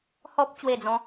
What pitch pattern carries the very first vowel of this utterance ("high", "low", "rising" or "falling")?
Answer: high